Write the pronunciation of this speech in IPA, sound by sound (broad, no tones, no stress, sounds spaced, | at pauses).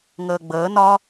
ŋ əː ɡ͡b əː n ɒ